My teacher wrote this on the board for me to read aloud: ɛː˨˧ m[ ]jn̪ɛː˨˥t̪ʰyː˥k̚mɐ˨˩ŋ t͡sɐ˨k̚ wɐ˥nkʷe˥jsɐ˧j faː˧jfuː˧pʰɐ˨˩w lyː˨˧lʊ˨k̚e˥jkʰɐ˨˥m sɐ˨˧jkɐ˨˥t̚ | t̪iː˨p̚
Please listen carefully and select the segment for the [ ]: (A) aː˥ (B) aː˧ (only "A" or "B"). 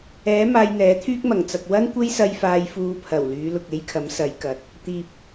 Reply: B